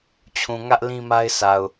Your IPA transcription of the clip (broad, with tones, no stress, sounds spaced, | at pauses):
t͡ɕʰ ũ˨ ŋ ä˦ ʔ l ĩ˦ m a˦ ɪ̯ sʰ a˨ ʊ̯